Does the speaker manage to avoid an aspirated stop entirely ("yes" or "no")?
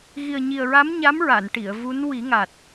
yes